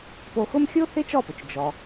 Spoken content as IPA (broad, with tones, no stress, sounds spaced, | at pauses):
p o˧ x ʊ˥ m xʲ o˥ θ ɪ˥ t͡ʃ ɔ˥˩ p ʊ˩ t͡ʃ d͡ʒ ɔ˩